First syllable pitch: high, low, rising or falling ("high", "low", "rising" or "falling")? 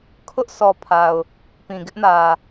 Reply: high